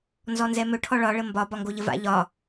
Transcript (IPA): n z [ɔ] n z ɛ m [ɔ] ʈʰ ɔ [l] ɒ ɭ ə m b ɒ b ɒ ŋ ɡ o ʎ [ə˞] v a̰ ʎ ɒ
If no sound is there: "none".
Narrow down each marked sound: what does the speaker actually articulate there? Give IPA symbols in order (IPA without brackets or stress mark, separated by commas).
ɔ, ɵ, ɭ, ə